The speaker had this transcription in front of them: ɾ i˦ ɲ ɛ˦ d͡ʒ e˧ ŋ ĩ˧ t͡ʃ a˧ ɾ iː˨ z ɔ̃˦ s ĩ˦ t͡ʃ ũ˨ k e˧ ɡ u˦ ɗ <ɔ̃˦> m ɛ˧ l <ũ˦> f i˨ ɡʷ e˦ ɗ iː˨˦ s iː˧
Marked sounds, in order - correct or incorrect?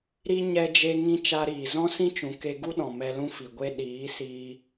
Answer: incorrect: ɔ̃˨, correct

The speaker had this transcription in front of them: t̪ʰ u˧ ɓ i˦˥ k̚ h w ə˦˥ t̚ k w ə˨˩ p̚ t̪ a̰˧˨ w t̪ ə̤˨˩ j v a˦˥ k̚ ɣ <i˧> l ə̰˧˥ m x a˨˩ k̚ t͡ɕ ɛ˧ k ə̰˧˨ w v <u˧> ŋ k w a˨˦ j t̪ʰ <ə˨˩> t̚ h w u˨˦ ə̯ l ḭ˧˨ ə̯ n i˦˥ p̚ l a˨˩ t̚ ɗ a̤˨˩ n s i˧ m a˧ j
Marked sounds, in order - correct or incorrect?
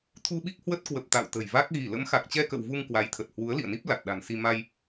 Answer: incorrect: i˧˩, correct, correct

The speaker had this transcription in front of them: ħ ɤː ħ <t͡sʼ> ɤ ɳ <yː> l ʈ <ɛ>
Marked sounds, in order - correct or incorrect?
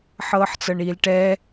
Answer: incorrect: t͡s, incorrect: iː, correct

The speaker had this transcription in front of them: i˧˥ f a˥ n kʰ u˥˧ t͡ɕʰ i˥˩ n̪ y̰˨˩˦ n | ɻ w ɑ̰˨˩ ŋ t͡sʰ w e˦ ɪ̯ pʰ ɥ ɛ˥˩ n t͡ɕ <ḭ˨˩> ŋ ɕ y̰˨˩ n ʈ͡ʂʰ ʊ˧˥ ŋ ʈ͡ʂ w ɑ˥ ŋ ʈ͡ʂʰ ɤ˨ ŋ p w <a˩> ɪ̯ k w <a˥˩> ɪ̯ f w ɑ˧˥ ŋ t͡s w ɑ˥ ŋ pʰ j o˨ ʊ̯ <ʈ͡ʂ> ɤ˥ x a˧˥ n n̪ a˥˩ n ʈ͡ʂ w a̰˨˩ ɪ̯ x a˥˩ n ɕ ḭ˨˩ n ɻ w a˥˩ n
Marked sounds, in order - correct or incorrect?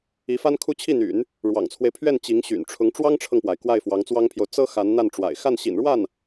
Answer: incorrect: i˧˥, correct, correct, incorrect: t͡s

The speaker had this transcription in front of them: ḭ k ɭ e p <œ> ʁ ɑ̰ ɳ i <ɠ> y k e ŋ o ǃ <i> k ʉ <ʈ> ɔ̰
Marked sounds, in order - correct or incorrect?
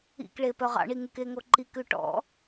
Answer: correct, incorrect: ŋ, correct, correct

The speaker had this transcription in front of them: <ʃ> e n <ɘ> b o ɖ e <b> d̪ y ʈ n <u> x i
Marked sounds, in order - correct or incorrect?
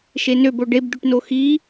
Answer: correct, incorrect: ø, correct, incorrect: o

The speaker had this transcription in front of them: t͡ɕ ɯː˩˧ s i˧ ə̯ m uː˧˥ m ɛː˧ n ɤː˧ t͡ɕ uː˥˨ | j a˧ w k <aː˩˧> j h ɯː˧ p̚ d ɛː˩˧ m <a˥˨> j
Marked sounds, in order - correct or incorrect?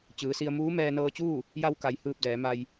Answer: incorrect: a˩˧, incorrect: a˧

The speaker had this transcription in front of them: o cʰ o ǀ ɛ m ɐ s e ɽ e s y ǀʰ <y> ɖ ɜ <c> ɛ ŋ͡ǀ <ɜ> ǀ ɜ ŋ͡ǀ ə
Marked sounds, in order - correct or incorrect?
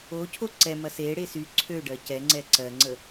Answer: incorrect: ø, correct, incorrect: ɛ

